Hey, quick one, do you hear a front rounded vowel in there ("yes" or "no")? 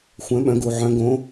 yes